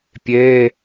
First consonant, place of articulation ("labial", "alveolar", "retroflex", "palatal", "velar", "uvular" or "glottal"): labial